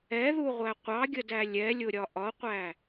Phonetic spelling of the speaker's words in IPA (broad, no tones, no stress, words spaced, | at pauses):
ɛðuʁʷæ qʷɑɡʲədæ lʲɛlʲʊɾʲɒ ʔɒqʷæ